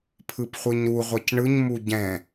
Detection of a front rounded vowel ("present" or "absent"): absent